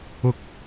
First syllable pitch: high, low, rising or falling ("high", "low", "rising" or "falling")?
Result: rising